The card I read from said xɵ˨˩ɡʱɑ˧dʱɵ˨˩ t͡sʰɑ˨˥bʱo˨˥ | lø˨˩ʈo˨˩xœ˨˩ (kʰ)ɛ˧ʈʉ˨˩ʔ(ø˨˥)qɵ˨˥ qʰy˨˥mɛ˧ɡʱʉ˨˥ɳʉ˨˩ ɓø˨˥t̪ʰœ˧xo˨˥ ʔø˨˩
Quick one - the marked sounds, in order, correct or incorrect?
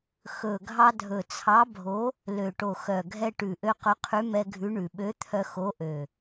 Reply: incorrect: ɡʱ, incorrect: ø˧

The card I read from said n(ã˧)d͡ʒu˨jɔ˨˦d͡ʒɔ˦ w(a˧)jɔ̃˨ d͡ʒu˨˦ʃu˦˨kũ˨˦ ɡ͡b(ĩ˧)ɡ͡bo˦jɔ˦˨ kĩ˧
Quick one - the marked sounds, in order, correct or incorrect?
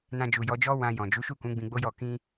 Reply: correct, incorrect: ã˧, correct

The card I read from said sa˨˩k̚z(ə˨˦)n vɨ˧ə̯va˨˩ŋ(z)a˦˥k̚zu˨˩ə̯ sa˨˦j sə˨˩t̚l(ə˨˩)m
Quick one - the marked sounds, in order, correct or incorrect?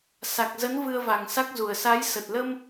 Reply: correct, incorrect: s, incorrect: ə˧

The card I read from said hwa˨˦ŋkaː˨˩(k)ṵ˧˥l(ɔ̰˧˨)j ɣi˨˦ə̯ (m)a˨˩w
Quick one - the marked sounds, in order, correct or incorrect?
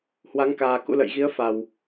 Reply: correct, incorrect: ə̰˧˨, incorrect: f

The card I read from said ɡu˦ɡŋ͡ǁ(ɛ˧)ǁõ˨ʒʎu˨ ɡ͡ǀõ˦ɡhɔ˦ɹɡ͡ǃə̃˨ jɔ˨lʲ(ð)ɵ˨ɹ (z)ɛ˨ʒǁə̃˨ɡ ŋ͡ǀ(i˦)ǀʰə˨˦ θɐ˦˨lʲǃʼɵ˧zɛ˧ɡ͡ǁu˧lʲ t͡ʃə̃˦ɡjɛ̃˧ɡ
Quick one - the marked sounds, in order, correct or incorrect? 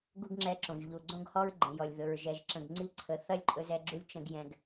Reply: correct, correct, incorrect: ʒ, correct

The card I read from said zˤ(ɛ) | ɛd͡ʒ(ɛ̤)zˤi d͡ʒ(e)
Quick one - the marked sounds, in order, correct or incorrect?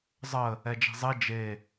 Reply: incorrect: ə, correct, correct

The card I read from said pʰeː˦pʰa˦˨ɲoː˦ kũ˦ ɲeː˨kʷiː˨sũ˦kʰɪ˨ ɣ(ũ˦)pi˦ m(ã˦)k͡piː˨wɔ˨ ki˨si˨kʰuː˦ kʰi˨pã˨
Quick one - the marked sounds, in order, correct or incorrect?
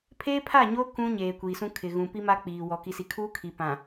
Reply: incorrect: ũ˨, incorrect: a˦

